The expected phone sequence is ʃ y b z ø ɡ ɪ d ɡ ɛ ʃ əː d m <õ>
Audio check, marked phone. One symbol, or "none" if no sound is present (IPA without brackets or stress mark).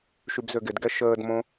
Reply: õ